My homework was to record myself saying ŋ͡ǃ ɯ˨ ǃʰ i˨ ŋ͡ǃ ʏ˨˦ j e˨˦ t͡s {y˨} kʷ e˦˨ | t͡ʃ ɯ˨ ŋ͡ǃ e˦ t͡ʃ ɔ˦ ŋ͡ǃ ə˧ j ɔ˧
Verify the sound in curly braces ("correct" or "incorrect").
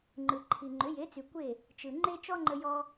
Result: correct